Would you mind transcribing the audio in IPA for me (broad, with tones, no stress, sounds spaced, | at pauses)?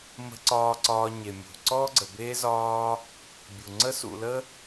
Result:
m ə̤˨ ǀ ɒː˨ ǀ ɒː˨ ɲ e˩ mʲ ṳ˩ ǀ ɔ˥ ɡ͡ǀ ə˨ b eː˥ z ɒː˦ | bʲ u˩ ŋ͡ǀ ə˦ s ṵ˨ l ə˥